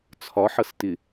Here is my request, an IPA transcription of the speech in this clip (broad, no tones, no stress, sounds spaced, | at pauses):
t͡sʰ ɒ ħ ʌ s t ɪ